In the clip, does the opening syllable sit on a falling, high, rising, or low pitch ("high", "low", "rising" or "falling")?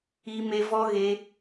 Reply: high